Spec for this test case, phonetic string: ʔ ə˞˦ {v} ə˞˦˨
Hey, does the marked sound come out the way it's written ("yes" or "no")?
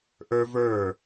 yes